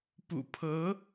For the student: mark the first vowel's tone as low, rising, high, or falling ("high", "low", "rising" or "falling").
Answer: low